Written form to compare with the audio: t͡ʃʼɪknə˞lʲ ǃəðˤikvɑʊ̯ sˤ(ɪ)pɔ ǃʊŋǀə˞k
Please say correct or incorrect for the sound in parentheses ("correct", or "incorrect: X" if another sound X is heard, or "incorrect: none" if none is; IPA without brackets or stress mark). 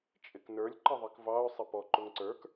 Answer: correct